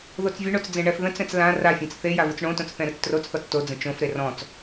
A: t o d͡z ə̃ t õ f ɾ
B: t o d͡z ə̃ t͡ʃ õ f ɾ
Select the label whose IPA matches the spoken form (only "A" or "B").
B